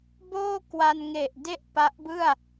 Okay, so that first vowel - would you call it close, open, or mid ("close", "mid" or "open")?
mid